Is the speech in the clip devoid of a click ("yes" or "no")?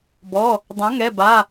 yes